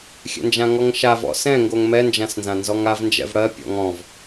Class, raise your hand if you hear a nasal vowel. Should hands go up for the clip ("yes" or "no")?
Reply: yes